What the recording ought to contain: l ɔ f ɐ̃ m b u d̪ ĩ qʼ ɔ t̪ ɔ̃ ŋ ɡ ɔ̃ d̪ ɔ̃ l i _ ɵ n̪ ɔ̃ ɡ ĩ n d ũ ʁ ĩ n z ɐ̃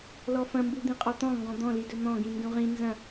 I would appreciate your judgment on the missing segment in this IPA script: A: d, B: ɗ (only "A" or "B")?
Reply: A